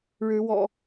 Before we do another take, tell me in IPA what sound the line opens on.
ɻ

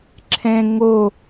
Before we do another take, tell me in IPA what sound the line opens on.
ǁʰ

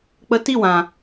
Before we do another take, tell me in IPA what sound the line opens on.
k͡p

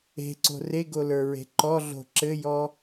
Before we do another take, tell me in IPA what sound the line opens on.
e̤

